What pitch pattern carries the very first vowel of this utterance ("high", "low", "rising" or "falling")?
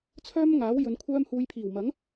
high